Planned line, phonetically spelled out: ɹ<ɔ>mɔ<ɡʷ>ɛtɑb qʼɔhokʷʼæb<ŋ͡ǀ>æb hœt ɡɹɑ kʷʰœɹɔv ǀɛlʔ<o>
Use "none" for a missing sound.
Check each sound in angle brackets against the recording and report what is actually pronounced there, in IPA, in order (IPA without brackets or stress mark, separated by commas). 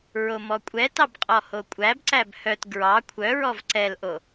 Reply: o, kʷʼ, ǀ, o